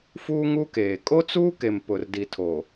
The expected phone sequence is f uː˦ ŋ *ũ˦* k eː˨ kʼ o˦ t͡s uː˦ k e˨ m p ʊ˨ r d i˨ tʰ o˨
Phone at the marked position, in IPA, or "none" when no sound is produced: u˦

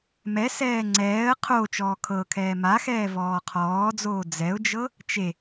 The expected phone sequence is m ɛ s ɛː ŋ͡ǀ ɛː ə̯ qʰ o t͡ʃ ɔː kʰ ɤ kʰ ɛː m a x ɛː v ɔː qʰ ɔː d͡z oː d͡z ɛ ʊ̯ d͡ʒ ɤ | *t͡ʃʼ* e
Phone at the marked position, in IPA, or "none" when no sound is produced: t͡ʃ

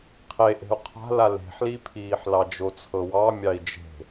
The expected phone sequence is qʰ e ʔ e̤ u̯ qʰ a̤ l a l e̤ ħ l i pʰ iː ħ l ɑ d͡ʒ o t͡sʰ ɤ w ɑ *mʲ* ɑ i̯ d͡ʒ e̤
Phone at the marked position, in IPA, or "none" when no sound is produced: mʲ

